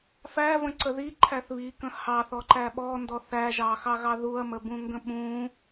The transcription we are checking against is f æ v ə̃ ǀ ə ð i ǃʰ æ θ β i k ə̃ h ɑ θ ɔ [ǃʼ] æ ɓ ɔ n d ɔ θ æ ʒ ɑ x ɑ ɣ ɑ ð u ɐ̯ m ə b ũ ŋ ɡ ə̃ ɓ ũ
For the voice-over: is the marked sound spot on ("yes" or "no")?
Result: no